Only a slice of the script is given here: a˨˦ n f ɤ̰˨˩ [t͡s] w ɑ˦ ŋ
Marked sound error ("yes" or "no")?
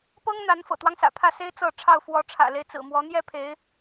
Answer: yes